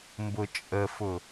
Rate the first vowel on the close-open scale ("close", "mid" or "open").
close